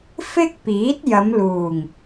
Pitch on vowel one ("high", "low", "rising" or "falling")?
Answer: high